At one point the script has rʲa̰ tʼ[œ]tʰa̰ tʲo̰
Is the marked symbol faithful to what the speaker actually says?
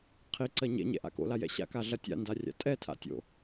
no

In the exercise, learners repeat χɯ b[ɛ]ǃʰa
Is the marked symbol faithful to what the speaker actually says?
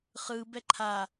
yes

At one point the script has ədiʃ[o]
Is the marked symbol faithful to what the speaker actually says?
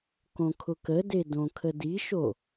yes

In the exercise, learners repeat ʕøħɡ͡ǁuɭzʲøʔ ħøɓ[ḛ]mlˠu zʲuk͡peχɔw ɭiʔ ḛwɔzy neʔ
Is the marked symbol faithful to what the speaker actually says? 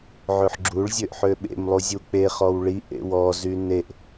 yes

